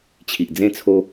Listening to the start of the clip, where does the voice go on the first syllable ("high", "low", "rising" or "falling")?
low